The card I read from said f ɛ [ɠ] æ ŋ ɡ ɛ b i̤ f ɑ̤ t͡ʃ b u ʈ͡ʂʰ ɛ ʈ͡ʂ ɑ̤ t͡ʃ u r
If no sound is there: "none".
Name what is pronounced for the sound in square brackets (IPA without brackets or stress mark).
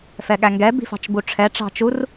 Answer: ɠ